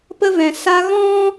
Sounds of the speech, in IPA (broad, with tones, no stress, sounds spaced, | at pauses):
p ə˧ v ɛ̃˨ s a˧ ɣ ɔ̃˦